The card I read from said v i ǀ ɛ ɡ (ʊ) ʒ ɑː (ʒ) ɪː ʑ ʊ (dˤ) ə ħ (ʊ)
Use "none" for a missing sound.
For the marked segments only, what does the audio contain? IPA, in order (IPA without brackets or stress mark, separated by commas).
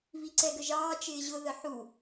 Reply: ə, t͡ʃ, ð, u